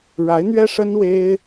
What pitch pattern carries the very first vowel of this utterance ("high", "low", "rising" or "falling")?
rising